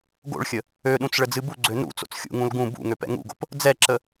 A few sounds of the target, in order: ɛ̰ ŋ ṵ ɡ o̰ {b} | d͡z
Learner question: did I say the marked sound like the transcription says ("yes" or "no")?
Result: no